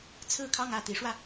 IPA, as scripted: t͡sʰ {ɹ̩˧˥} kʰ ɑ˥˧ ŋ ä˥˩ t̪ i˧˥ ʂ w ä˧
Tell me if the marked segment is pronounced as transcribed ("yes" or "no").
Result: no